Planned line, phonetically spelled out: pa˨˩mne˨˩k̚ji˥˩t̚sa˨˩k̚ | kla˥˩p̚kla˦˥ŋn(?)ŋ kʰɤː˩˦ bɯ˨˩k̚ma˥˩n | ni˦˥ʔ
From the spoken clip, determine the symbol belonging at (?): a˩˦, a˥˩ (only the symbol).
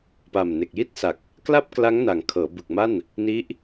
a˩˦